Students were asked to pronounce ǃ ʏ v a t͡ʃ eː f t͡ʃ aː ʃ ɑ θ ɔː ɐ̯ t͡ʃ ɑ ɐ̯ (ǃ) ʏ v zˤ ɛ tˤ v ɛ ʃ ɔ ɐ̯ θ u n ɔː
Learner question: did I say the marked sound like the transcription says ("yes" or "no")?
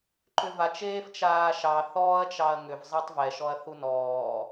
no